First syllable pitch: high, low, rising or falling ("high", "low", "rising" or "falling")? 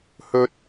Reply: high